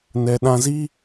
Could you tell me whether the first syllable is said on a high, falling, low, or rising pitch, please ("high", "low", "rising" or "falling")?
low